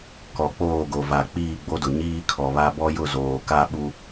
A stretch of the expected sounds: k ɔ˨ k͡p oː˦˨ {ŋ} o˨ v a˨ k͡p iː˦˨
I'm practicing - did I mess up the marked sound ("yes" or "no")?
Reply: yes